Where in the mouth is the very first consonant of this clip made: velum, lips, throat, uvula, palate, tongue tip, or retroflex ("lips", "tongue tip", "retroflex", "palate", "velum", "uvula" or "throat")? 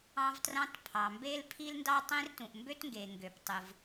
lips